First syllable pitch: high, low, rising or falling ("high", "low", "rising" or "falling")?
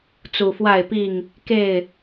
low